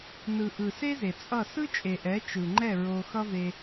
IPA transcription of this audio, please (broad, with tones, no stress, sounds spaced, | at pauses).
n ɯ˨ ʔ ɯ˨ s e˦ z e˨ t͡sʼ ʌ˦˨ s ɯ˦ t͡ʃʼ e˨ ʔ ɛ˨˦ t͡ʃ ɯ˨ ŋ͡ǃ ɛ˦˨ ɹ o˦ x ʌ˦ v e˧